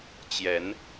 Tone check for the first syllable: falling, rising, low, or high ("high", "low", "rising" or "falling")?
rising